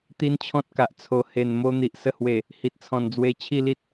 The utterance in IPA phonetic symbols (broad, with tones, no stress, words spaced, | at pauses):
t̪i˦nt͡ɕʰɔ̃˦t̚ka˨ʔ t͡sʰo˨˩ he˨˩nmo˧ n̪i˨ʔsə˧hwe˨˩ | hi˨t̚t͡sʰɔ̃˨˩nd͡zwe˧ t͡ɕʰi˥˧li˦t̚